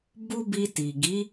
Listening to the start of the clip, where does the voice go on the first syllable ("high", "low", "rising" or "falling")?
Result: high